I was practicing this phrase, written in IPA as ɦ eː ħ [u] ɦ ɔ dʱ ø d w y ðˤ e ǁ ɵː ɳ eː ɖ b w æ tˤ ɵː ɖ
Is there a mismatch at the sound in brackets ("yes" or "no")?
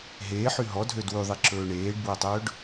yes